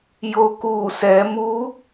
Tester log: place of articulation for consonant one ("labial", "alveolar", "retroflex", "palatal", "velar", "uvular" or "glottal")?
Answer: palatal